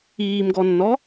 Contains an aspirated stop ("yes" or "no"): no